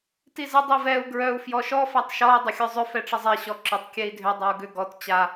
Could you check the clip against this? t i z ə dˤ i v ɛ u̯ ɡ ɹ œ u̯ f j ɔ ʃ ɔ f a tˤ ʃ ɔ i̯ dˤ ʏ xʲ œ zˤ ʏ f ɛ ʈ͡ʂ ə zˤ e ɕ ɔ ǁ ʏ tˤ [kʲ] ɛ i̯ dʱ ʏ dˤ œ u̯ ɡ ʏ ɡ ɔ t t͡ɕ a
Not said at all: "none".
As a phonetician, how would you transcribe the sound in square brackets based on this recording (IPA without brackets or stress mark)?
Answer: kʲ